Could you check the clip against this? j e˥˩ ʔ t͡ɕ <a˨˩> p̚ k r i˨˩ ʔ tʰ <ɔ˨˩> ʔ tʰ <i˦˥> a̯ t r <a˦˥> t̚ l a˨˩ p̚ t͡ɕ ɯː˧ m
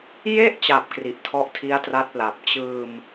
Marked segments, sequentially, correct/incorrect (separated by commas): correct, incorrect, correct, correct